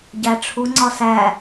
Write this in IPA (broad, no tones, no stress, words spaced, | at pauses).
ɟæʈ͡ʂʰuŋ͡ǀɒ sæ